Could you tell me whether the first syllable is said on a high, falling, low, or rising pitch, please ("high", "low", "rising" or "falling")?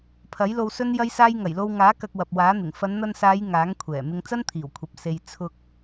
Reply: rising